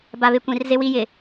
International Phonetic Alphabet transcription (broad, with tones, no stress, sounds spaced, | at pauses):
b a˨ β ɪ˨ kʷ ĩ˨ r z ɪ˦ w i˦ j ɪ˨